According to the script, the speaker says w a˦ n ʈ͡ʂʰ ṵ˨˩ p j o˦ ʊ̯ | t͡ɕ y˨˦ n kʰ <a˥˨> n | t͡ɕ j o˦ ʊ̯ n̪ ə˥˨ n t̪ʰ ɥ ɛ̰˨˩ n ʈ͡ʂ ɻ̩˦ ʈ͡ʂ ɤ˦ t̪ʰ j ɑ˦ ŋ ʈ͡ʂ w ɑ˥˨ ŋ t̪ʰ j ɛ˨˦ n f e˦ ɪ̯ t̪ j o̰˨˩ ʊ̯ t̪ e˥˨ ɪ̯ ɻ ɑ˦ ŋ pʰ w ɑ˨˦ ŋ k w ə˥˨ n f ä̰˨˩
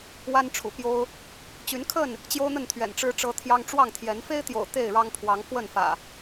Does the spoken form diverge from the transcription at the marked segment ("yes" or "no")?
yes